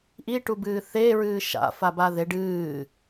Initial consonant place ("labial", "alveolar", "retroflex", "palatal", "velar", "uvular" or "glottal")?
glottal